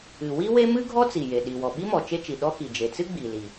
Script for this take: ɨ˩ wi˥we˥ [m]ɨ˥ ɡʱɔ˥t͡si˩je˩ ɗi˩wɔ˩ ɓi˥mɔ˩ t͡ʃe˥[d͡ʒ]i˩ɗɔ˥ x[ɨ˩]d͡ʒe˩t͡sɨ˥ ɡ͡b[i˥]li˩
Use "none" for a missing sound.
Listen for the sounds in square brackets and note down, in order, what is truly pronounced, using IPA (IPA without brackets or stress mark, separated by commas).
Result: m, t͡ʃ, i˩, i˩